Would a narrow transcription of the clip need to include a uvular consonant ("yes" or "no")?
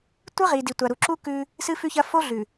yes